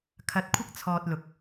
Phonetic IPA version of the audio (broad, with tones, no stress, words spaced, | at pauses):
kʰɐ˧t̚kʷʰɐ˥k̚t͡sʰɔː˧t̚ lʊ˧k̚